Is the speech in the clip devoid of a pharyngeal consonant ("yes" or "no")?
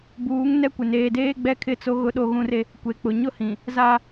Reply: yes